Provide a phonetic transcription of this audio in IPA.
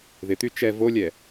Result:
ð ɪ t̪ y t͡ʃ ɛ v o lʲ ɛ

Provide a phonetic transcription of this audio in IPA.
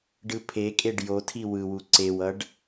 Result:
ɖ ɯ pʰ e kʼ e ɖ j o tʰ i w ɯ w u ǀ e w ʌ ɖ

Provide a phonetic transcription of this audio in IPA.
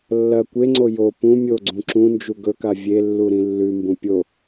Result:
lː ɐ kʷ e ŋ͡ǀ o j o p ũ mʲ o ɡ͡ǀ ũ ǁ ũ n d͡ʒ u ɡ ɵ k a vʲ e lː u ɾ ĩ lː ʉ m b ũ pʲ o

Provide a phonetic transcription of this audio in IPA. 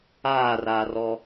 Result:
aː r aː r ɔ

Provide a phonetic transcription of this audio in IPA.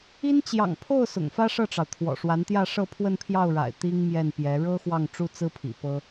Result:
i˥ n t͡ɕ j ɑ̰˨˩ ŋ pʰ o˥˩ ʊ̯ s ʊ̰˨˩ ŋ f ä˥ ʂ ɤ˥˩ ʈ͡ʂ ɑ˩ ʊ̯ t̪ʰ w ɔ̰˨˩ ʂ w a˧˥ n t̪ j ä˥˧ ʂ ɤ˥˧ pʰ w ə˥˧ n pʰ j ɑ˥˩ ʊ̯ ɻ a̰˨˩ ɪ̯ t̪ i˥ ŋ m j ɛ˥˩ n p j ɛ˧˥ ɻ ɤ˥ x w ɑ˥˩ ŋ ʈ͡ʂ u˥ t͡s ɹ̩˥ pʰ ḭ˨˩ p ɤ˥

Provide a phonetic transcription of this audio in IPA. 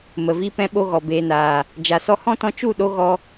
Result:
m ə˨ v i˧ p ɛ̃˧ ɓ o˧ ɣ ɔ˨ b eː˨ n aː˨ | d͡ʒ a˨ s ɔ˧ h ɔ̃˦ t ɔ̃˧ t͡ʃ u˦˨ ɗ o˧ ɣ ɔ˧

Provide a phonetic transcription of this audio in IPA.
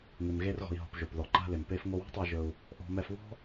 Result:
ŋ ɪ˩ m ɣ e˧ r ɣ ɔ̤˩ i̯ ɦ ɔ̤˩ p ʒ o˩ p ð ɔ˩ ǃ a̤˧ l ɪ˩ m p e˧ f ŋ o˧ w ɔ̤˥ tˤ ɛ˧ ʒ ɵ˧ u̯ | ʔ ɔ̤˧ m ɛ˧ f β ɔ̤˥

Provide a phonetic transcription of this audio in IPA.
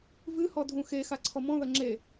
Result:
v ɨ h ɔ dʱ ũ x e x a ǀʰ ɔ m ɔ̃ ð ɐ ŋ͡ǁ e

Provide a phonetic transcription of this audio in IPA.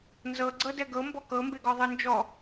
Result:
n z ɤ ɡ͡ǀ ɤ d ɛ ɡ ɤ m b ɔ k ɤ m b e ɡ ɔ ðˤ ɯ n d͡ʒ ɔ

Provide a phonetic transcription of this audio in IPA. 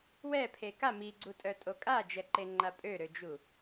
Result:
w ɛ pʰ e k a m i ɡ͡ǀ u tʼ œ tʼ o kʼ a d͡ʒ ɛ ǃ e ŋ͡ǃ a pʼ ø ɾ ø d͡ʒ u

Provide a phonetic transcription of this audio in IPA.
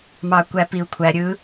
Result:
m ɑ kʷ æ p i u̯ kʷʰ æ ɾʲ ɯ

